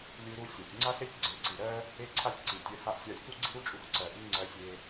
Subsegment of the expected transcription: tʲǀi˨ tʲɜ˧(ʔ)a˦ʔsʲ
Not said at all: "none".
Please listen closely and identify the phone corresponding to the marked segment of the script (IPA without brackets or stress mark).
h